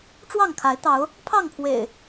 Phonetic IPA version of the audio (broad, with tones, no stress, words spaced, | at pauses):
ʈ͡ʂwɑ˥˨ŋ kʰa˨˦ɪ̯t̪ɑ˨˦ʊ̯ | pʰɑ˥˨ŋpʰwḛ˨˩ɪ̯